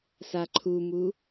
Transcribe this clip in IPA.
s a ǃʰ u m u

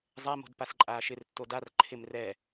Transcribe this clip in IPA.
zˤ ɛ m o̤ d p a s ǃʼ aː ʃ ɪ r tː o d a r ǃʰ ɪ m r ɛ

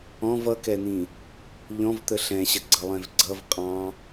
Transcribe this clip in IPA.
ɔ̃ v ʌ k ɛ n̪ ĩ | ʎ ɔ̃ v t̪ ə ɬ ɛ̃ ɕ ə ɡ͡ǀ ʌ lˠ ɛ̃ v ɡ͡ǀ ʌ v qʼ ɑ̃

